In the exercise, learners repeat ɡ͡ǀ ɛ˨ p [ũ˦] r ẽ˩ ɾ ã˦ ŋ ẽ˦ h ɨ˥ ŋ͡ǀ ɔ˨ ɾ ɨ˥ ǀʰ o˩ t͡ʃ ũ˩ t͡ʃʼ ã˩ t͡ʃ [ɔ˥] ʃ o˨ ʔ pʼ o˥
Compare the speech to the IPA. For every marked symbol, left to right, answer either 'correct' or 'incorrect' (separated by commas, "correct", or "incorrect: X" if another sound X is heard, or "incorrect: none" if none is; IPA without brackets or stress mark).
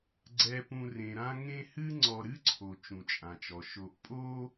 incorrect: ũ˨, incorrect: ɔ˩